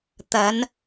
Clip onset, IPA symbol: t̪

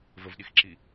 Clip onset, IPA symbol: v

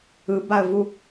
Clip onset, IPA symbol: ɯ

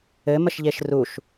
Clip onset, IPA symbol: ɘ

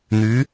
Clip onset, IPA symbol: n̪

